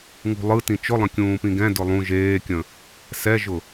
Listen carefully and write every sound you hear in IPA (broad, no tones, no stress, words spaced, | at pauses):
ŋṳlˠɯ tĩt͡ʃʊlˠə̃ kʲũːpĩɡɛ̃ dʊlˠũ ʒeːkʲə̃ | sɛʒʊ